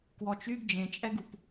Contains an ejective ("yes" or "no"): yes